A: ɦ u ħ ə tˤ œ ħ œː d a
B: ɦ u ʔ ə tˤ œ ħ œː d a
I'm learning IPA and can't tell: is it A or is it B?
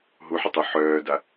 A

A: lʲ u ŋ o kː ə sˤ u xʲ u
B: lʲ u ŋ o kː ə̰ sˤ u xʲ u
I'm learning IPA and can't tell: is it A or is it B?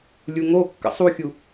B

